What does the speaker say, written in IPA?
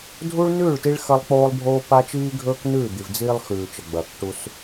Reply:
dʱ u˦ ɭ n ʉː˦˨ ɭ t i˦ ɭ x ɐ˦ lˠ k͡p oː˦ lˠ bʱ oː˦ p a˦ t͡ʃ iː˦ ɡʱ ɵː˦ k n ʉː˦˨ d̪ i˨ v d͡z iː˦ lˠ x ʉː˨ t͡ʃ ɐ˨ ɡ͡b ɐː˨ k ʈ u˦ s

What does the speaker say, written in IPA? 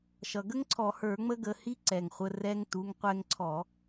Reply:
ʃ ʌ˩ ɡ ə˦˥ ŋ ǀʰ ɔ˧˩˧ h ə˞˧˩˧ ŋ͡m ə˦˥ ɡ ə˩˧˩ h i˦˥ ǀ ɛ˩ ŋ χʷ ə˩˧˩ r ɛ˧ ŋ t u˩˧˩ ŋ qʷ ɛ˧ ŋ ǀʰ ɔ˧˩˧

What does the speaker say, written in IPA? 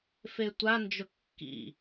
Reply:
f e tʷ a n d͡ʒ ʊ kː ḭ

